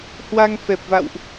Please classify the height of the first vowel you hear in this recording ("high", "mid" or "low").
low